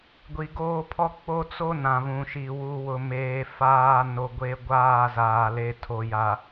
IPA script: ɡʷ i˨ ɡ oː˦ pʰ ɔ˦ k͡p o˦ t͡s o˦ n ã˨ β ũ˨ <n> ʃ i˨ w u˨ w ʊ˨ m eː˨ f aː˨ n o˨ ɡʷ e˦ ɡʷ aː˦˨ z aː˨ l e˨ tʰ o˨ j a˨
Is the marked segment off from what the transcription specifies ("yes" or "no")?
yes